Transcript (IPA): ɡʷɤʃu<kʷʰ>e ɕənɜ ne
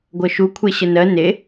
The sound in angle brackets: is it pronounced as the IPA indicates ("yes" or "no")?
yes